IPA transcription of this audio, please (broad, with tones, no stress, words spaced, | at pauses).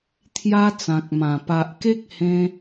t̪ʰja˦t͡sã˨k̚mã˨˩ pa˨ʔke˦k̚hẽ˧